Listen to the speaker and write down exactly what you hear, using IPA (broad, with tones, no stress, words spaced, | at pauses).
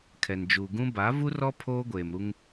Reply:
kʰɛ˨nd͡ʒu˨ɡũ˦ ba˨˦vu˦rɔ˦ pʰoː˦ɡʷeː˨mɾu˦ŋ